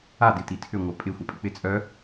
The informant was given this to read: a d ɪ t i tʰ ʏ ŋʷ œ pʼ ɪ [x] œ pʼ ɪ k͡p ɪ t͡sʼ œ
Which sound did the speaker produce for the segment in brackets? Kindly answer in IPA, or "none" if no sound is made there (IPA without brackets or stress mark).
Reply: xʷ